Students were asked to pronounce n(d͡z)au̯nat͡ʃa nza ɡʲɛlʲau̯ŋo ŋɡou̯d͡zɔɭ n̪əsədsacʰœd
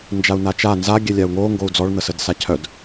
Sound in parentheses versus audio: incorrect: d͡ʒ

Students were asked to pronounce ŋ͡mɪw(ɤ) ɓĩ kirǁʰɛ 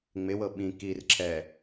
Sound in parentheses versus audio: correct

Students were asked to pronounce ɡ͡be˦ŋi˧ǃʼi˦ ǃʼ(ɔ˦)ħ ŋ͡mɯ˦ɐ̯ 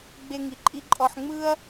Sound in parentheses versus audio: correct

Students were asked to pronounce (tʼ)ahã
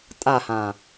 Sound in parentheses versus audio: correct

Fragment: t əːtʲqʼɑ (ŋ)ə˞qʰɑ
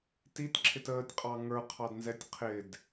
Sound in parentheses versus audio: correct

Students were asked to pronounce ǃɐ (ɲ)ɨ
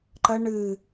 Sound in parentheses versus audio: incorrect: ɳ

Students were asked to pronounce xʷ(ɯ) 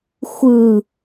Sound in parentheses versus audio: correct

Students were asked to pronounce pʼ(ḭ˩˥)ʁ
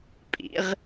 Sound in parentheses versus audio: correct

